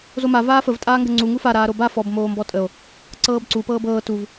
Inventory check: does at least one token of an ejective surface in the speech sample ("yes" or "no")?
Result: yes